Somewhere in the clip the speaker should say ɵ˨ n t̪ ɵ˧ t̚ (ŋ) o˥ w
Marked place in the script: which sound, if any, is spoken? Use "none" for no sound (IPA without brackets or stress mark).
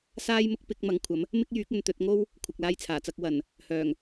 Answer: ŋ